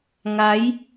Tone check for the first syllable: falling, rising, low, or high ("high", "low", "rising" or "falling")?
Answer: rising